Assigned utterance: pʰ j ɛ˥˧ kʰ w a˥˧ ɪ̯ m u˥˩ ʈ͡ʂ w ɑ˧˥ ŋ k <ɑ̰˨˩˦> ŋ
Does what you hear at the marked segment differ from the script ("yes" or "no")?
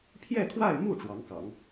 no